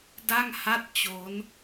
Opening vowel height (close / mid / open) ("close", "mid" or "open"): open